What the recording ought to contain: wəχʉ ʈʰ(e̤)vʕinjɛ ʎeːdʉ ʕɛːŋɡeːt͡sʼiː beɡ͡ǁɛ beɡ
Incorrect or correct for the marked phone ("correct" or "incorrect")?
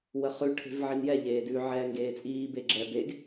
correct